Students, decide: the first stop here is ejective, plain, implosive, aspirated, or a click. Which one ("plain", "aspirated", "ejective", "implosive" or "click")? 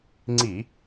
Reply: click